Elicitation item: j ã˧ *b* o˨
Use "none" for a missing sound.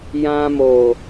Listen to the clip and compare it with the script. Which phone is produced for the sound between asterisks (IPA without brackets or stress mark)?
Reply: m